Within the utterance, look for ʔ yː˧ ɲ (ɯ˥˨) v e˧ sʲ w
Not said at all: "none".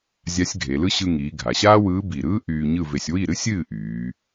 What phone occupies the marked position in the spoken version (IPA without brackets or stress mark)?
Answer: ɯ˥˨